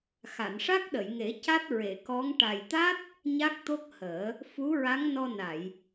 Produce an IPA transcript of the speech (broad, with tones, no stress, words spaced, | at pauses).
xa˨˩˨nʂa˦˥k̚ɗə˨˩˨jŋe˨˩˦ ca˦˥t̚ɹe˨˩˨kɔ˧˥ŋ ʈa˨˩jt̪a˦˥t̚ | ɲa˦˥k̚t̪o˦˥k̚həː˨˩˦ | fu˧˥ɹa˧˥ŋnɔ˧ na˨˩˨j